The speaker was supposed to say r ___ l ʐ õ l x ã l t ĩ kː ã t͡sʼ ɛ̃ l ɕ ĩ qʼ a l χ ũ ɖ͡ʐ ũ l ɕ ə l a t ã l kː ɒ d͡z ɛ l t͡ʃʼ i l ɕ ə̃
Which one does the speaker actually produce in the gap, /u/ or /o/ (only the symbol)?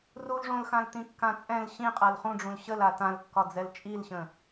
u